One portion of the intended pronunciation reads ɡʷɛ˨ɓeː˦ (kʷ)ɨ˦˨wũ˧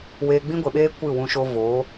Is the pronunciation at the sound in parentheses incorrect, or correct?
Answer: correct